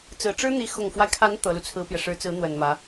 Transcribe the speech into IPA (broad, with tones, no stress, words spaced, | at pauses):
t͡sɹ̩˨˩ʈ͡ʂɻ̩˥n̪i˧˥ xʊ˨˩ŋfwa˦ɪ̯kʰa˧˥n t̪ɤ˧˥lu˧t͡sʰɹ̩˥pjɛ˨ ʂɻ̩˧˥t͡sɹ̩˧˥n̪wə˨˩n mä˧˥